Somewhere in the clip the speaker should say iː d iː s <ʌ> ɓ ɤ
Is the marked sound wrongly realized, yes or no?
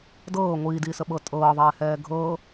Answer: yes